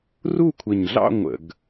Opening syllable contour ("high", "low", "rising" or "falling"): falling